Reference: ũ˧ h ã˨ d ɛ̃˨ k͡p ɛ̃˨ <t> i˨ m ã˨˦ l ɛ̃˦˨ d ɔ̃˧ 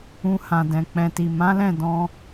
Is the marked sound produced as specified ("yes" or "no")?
yes